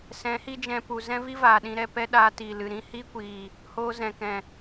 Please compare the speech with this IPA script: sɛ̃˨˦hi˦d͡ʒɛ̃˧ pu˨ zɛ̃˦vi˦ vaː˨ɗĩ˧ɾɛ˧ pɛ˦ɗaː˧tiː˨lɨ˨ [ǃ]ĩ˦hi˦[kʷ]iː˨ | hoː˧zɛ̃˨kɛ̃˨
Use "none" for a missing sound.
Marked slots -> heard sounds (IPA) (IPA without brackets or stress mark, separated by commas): ɾ, kʷ